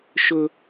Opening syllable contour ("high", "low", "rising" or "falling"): high